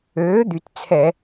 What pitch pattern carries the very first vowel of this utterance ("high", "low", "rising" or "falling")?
rising